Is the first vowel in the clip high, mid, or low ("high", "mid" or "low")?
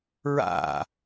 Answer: low